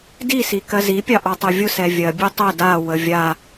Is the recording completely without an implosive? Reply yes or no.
yes